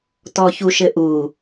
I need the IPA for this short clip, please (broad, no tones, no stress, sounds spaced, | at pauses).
t ɔ ç u ʃ ɘ ʔ u